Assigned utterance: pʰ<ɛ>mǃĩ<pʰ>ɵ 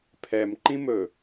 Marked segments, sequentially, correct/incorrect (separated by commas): correct, incorrect